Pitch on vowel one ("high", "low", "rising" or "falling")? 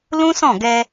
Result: high